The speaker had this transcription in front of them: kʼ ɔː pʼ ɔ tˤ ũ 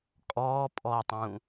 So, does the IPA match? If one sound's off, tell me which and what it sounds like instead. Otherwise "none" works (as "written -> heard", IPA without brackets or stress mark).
none